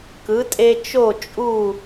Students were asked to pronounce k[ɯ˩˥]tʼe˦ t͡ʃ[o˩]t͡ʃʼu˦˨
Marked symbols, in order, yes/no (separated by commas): yes, no